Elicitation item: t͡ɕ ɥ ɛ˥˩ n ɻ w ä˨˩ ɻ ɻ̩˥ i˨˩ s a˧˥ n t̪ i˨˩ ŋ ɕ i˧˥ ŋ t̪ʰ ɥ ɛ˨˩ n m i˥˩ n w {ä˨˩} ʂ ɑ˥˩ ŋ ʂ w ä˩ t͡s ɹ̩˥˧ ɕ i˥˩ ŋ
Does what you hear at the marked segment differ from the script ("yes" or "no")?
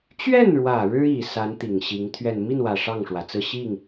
no